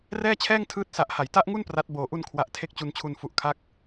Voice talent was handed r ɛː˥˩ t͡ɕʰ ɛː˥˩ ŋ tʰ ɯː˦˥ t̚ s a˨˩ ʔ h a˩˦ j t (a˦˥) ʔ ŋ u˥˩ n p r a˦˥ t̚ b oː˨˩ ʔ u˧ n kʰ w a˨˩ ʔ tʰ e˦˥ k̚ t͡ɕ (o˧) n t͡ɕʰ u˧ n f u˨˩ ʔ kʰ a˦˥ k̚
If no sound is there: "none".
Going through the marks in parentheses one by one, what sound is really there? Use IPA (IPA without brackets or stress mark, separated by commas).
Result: a˦˥, u˧